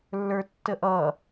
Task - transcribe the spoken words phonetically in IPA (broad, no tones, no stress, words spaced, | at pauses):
lːə˞tːəʔʌ